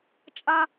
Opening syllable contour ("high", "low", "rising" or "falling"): high